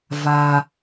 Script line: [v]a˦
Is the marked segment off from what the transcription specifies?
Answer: no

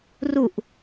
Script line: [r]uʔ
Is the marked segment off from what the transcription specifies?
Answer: no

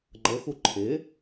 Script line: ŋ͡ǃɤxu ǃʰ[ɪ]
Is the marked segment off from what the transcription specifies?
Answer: no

